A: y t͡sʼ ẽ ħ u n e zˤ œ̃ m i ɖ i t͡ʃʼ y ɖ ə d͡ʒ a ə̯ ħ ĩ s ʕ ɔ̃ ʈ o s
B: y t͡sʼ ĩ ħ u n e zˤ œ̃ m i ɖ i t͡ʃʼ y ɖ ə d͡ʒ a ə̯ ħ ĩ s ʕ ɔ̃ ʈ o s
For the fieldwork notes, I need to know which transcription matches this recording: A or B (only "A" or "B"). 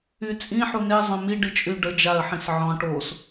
B